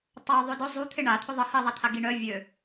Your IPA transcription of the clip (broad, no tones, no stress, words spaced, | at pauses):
tˤo ðˤʏdʊ zˤut̪ʰɪ ɳat̪ʰʏ ðˤə hiðˤat̪ʰa ɡiɳœ vʲø